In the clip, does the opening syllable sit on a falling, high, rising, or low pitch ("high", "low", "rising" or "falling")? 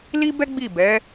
high